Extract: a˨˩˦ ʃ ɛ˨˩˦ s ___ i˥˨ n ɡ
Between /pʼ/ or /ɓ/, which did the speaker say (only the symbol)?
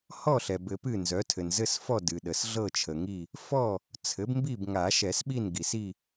ɓ